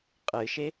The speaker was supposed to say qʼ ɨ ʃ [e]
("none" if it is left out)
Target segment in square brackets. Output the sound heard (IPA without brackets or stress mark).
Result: e